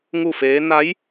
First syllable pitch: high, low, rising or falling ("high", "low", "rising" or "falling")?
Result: falling